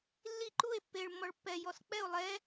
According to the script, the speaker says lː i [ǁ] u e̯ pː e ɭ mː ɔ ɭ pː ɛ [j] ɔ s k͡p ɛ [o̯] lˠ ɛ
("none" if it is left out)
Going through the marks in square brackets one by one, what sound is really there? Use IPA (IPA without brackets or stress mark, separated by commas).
ǃ, j, o̯